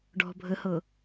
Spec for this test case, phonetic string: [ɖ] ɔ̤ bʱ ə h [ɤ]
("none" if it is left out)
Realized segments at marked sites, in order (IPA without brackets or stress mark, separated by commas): ɖ, ɤ